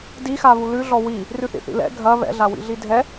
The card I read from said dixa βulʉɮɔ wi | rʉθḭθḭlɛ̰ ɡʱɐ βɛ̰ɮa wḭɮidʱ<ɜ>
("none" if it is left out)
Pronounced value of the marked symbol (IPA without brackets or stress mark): ɛ